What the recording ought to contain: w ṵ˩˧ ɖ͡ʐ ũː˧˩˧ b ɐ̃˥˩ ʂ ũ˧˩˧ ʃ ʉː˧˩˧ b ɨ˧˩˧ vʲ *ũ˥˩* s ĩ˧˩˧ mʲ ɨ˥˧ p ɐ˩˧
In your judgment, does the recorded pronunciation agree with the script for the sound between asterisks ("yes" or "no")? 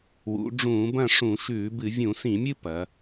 no